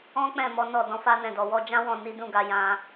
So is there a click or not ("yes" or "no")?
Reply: no